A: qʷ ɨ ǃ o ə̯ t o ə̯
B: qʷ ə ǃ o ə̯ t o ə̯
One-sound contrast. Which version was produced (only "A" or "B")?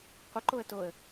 B